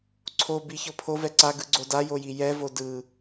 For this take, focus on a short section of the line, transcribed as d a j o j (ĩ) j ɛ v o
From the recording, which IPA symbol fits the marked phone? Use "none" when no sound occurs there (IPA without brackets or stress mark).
i